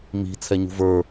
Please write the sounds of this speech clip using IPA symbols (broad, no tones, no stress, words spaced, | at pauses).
mi̤ t͡sʰɛɲṳvə˞